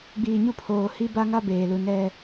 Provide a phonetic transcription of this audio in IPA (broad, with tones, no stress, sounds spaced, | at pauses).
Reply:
ɡ͡b iː˨ ɲ u˦ pʰ oː˨ h i˦ b a˦ ŋ a˦ b eː˨ l u˨ n ɛ˦